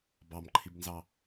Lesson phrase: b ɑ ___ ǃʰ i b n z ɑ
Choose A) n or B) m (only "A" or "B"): B